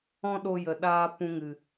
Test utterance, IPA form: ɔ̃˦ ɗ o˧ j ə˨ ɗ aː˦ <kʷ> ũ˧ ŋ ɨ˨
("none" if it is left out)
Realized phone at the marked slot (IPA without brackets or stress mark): p